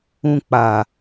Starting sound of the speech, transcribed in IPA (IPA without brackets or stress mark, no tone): ũ